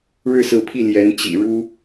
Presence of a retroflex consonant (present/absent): present